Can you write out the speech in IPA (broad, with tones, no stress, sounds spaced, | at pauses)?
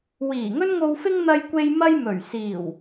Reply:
w iː˨˩ ŋ ɵ˥ n ŋ o˧ w f ɪ˥ ŋ n̪ ɐ˧ j kʷ e˧ j m ɐ˥ j m ɵ˨˩ ɥ s iː˨˩ w